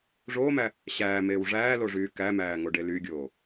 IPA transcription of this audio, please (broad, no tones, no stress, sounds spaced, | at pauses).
ʐ oː m æ | ɕ æː m eː w ʐ æː l o ʐ yː k æ m æː ŋ o ɖ e l y ɡʲ oː